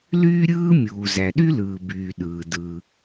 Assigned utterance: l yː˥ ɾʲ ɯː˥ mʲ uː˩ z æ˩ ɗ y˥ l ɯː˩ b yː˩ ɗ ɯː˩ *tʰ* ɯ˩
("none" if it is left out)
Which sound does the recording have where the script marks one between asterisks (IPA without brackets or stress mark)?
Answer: d